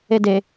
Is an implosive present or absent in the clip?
absent